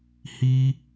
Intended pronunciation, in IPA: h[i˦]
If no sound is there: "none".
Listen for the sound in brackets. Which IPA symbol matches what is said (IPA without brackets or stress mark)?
i˦